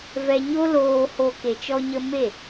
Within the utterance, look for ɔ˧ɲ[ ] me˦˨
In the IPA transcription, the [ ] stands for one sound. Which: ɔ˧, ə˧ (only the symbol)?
ə˧